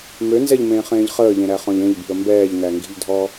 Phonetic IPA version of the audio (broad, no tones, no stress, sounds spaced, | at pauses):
m ø n z ɛ ʎ m ẽː χ ẽː ʎ χ əː ʎ ẽ ɾ æ χ ɔ̃ ʎ ẽ ʎ b i̤ ə̯ m b ɛː ʎ n æ ŋ ɡ i̤ ʎ dʱ ɔ